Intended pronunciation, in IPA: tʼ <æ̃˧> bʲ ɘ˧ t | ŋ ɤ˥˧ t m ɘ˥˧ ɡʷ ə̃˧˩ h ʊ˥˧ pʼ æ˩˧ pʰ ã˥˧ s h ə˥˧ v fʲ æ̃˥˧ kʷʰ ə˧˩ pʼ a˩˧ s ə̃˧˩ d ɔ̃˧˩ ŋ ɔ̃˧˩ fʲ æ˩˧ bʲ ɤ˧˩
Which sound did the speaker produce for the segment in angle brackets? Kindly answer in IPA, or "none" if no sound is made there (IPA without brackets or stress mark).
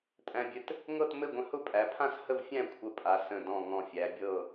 æ̃˧